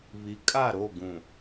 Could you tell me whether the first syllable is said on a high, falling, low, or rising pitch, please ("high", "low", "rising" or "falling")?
rising